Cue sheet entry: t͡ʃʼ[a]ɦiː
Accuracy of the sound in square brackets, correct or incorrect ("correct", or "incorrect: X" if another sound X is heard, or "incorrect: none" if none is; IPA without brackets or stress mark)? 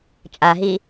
correct